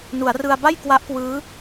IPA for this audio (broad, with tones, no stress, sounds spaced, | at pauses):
n u˩˦ a̯ r ɯ˧ a̯ b a˥˩ j k w a˦˥ ʔ k w ɯː˦˥